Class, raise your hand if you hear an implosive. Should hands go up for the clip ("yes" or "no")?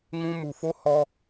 no